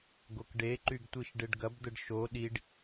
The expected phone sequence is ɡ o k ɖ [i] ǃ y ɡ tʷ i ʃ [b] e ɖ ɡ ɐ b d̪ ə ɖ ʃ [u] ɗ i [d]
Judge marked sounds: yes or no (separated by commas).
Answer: no, no, no, no